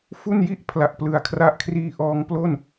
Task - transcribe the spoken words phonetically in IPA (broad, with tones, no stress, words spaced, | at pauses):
fu˥˩nji˥˩ʔ pʰla˨˩ʔplɯ˩˦a̯kʰra˦˥ʔkʰriː˧ ʔɔː˧ŋplo˥˩n